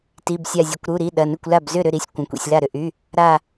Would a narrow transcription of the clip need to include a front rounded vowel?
yes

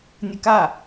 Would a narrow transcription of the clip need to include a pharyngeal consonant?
no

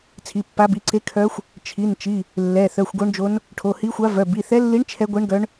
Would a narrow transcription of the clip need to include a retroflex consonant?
yes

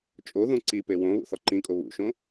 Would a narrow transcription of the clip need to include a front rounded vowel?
no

